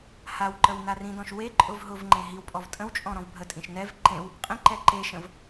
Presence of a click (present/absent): present